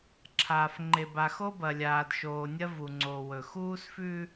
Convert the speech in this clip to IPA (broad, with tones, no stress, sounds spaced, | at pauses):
ǁʰ aː˨ f ŋ͡ǃ e˨ b a˨ x o˦ b ɐ˨ lʲ aː˨ d ʃ oː˨ nʲ ɐ˦ v u˨ ŋ͡ǀ o˨ w ɵ˨ x uː˦ s f ʉ˦